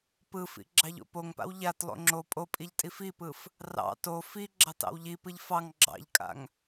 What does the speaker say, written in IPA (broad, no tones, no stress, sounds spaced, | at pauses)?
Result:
p ɯ f ḭ ɡ͡ǁ ɑ ʎ o̰ p o ŋ p a̰ w ʎ a t lˠ o̰ ŋ͡ǁ o pʼ o pʼ i ʎ tʼ i f i p ɯ f | r ɑ̰ t o f i ɡ͡ǁ ɑ t ɑ̰ w ʎ i p ɯ ʎ f ɑ ŋ ɡ͡ǁ ɑ̰ ʎ kʼ a̰ ŋ